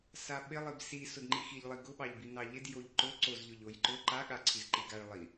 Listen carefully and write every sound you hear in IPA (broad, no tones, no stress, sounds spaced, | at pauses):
s a ɓ ɪ lˠ i b s i s ʊ d ŋ͡ǃ i x i ʎ lˠ i ɡ ʊ ɓ ɑ ʎ b i n ɑ ʎ ɪ d j o ʎ ǃ ʊ ǀ o z ʎ ʊ ʎ o j ǃ ʊ ǃ a ɠ a ǀʰ i z ǃ i ɡ a ɭ lˠ i